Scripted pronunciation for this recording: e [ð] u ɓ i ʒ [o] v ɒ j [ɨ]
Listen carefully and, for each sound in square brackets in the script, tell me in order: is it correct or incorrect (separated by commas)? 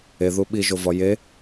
correct, correct, incorrect